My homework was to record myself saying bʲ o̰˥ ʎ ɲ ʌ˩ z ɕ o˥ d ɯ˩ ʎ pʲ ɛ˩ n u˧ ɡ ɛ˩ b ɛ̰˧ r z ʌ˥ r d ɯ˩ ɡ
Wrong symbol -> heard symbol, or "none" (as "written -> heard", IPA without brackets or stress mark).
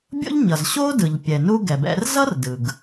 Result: none